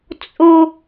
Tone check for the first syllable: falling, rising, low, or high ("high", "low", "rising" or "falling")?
high